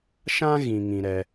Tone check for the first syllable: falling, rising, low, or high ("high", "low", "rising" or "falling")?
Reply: high